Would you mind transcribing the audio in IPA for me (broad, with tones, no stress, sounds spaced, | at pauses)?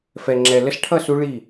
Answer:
f ɛ˨ ŋ͡ǁ ɛ˨ l ə˧ s ʈʰ ʌ˦˨ s u˧ ɭ i˦˨